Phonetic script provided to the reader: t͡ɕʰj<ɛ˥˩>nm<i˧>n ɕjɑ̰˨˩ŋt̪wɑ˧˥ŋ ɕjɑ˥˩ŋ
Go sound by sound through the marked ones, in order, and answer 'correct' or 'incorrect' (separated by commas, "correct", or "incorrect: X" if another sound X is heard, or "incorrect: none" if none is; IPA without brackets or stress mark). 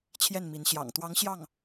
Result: correct, incorrect: i˧˥